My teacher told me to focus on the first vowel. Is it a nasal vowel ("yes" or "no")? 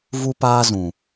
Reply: no